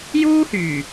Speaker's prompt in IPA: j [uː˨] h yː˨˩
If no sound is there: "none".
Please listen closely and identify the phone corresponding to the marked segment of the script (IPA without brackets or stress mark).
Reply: uː˥